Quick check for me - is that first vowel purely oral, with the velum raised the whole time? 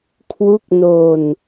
yes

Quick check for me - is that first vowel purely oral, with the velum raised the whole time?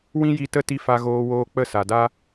no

